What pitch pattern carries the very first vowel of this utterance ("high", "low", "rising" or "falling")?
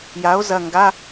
rising